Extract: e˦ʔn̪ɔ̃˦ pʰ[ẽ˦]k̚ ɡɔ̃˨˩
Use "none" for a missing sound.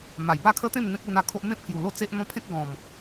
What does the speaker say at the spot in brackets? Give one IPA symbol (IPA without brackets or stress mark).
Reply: ẽ˦